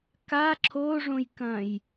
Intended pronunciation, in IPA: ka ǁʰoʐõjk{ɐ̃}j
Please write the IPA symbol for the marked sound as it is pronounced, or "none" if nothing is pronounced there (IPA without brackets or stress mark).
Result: ɐ̃